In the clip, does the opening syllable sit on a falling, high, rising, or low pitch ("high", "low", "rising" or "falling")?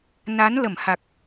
rising